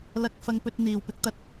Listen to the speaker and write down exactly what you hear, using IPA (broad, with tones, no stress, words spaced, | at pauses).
lɐ˥k̚ fɐ˥ŋpɵ˥t̚ n̪iː˨wpɪ˥k̚t̪ɐ˧t̚